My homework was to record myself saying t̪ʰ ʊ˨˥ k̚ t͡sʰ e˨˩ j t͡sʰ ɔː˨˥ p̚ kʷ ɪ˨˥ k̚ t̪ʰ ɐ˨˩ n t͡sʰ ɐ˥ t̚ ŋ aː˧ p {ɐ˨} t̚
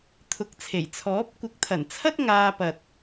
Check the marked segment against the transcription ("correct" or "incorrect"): correct